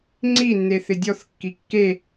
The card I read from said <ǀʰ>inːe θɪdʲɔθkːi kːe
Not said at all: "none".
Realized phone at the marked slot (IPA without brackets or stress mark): ŋ͡ǀ